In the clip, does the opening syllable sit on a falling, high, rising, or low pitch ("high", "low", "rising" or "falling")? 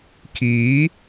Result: rising